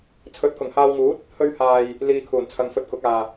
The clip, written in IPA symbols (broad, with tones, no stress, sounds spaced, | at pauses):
t͡sʰ ɵ˨˥ t̚ k ʊ˨˩ ŋ h aː˧ w ŋ uː˨˥ t̚ | h ɵ˧ ɥ h aː˨ j | l iː˧ kʰ uː˨˩ n t͡sʰ ɐ˨˧ ŋ f ɵ˧ t̚ k ʊ˨˥ k̚ aː˨